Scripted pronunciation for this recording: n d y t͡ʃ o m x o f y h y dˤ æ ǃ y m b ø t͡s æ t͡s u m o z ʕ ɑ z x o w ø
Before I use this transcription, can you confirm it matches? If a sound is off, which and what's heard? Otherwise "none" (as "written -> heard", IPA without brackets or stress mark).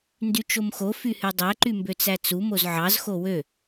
none